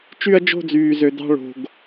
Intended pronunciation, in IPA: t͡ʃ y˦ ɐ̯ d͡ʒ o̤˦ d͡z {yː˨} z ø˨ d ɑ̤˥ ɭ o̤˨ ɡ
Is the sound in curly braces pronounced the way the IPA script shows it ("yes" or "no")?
yes